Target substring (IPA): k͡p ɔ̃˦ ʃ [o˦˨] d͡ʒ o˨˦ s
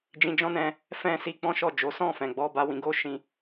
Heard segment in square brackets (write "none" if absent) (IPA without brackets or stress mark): ɔ˦˨